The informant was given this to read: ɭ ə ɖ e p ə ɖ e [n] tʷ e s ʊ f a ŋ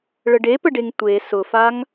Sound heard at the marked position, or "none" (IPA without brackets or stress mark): ŋ